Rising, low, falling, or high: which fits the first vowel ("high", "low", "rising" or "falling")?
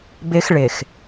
high